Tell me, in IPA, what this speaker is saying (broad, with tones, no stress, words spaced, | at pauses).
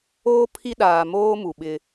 oː˦ pʰi˦ɗaː˨ moː˦ mu˨ɓɪ˦